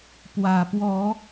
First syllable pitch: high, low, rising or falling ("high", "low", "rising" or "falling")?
low